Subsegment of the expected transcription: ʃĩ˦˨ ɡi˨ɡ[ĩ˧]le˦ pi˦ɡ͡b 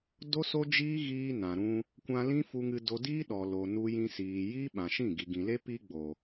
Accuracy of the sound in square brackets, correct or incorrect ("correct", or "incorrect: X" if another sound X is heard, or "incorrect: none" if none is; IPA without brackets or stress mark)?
incorrect: ĩ˨